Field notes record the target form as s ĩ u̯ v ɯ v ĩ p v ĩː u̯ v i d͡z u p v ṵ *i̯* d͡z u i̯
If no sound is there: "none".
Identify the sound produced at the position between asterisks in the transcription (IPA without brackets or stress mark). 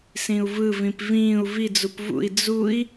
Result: i̯